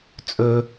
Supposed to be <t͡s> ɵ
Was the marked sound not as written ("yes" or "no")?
yes